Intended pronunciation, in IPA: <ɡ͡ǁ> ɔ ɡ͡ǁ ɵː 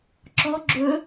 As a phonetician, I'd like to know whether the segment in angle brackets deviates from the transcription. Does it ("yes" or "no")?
yes